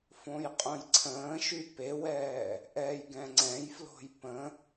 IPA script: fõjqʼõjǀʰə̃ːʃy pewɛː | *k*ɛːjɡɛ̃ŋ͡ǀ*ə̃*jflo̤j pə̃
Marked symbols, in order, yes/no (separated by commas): no, no